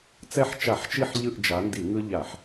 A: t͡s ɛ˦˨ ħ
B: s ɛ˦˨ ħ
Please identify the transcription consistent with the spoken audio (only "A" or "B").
A